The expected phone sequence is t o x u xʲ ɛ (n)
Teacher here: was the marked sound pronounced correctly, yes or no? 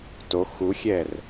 no